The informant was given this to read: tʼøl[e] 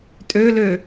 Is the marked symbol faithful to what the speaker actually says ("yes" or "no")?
no